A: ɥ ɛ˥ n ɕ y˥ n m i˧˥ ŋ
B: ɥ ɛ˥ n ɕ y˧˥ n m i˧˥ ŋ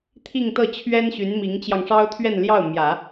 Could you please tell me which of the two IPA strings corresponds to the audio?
B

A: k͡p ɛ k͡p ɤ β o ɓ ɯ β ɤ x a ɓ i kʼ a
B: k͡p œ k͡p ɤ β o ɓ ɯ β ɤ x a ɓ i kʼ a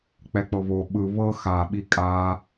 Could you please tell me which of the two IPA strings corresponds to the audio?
A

